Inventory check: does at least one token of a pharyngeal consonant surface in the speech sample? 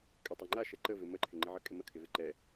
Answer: yes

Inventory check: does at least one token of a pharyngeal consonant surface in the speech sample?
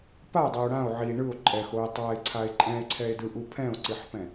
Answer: yes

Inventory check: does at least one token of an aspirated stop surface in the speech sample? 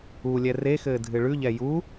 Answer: no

